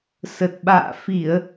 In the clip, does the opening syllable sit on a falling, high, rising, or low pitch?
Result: low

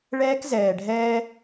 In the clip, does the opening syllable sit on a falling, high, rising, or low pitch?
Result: high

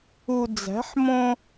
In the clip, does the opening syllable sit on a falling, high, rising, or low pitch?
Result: low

